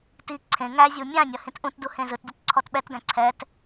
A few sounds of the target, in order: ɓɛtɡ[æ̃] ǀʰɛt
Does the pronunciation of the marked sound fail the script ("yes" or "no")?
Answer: no